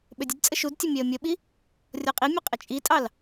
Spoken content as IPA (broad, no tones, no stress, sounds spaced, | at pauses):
ɓ ø dʲ ə d t͡sʼ ə ʃ u d tʲ ə mʲ ɛ ə̯ mʲ ə ɓ i | rʲ ɔ qʼ i mʲ ɐ qʼ ə t͡ʃʼ i tʼ ɑ l